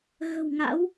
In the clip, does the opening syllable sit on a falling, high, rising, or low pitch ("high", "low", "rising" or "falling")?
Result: low